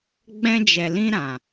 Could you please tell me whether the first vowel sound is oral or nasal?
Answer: nasal